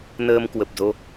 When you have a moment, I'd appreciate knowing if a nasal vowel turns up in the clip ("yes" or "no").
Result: no